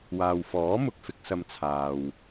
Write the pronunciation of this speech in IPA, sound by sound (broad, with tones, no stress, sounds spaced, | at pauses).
w aː˨ w f ɔː˨˥ m ʊ˨ k̚ f ɪ˧ k̚ s ɐ˧ m t͡sʰ aː˨ w